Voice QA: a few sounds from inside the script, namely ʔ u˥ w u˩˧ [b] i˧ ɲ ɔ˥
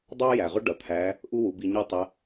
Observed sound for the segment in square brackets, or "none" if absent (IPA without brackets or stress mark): b